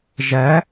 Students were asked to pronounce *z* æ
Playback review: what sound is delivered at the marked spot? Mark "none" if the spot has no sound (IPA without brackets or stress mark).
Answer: ʒ